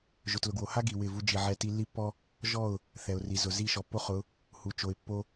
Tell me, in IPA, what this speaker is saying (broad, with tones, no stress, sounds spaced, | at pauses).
ʒ ʊ˨ t l ʊ˨ ɡ w o˨ h a˦ ɡ i˨ w ɪ˦˨ v u˦ d͡ʒ i˨ ʕ ɛ˦ t i˦ lː i˦ pː ɔ˦ | ʒ ɔ˦˨ ʊ̯ | θ ɛ˨ ʊ̯ r i˨ z ʊ˨ z i˦˨ ʃ ɔ˨ pː o˦ χ ʊ˨˦ | h u˨ t͡ʃ o˨ ɪ̯ pː o˦